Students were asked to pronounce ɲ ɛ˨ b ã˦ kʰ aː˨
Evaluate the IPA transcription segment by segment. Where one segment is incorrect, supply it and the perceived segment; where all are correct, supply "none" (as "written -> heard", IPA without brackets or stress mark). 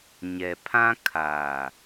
b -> pʰ